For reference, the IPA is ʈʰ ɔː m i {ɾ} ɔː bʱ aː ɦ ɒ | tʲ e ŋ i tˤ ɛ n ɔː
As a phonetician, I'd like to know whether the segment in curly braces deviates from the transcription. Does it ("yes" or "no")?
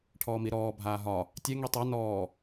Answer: no